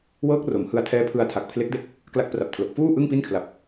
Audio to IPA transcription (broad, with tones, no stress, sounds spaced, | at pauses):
w ɤː˦˥ k̚ r o˩˦ m h ɯ˧ a̯ tʰ ɛː˦˥ pʰ ɯ˧ a̯ tʰ a˨˩ k̚ pʰ l e˦˥ k̚ d e˥˩ k̚ | k l a˦˥ k̚ p r a˨˩ p̚ kʰ l o˨˩ k̚ f uː˥˩ ʔ ɯ˥˩ ŋ p i˥˩ n kʰ l a˨˩ p̚